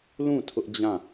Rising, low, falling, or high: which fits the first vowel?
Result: falling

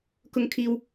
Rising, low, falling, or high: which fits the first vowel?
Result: high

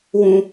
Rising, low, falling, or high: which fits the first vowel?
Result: high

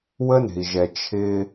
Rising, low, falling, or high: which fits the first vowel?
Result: high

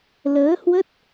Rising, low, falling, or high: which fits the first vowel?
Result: rising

